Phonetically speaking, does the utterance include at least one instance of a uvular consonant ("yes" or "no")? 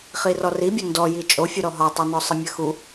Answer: yes